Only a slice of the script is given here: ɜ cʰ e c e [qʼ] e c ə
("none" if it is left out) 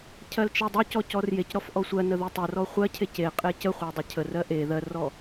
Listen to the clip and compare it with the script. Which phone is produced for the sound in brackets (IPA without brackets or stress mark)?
qʼ